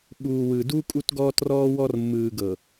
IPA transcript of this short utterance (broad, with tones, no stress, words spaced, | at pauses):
ɓuː˨wɯ˨du˦ kʼu˦tɡɔː˦trɔː˦wɔ˦r mːɯː˨ɡɤ˨